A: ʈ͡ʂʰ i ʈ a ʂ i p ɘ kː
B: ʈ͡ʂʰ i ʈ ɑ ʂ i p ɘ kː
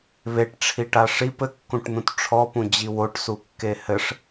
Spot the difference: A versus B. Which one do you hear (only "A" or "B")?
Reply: A